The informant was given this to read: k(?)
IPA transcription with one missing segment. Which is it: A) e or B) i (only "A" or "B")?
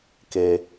A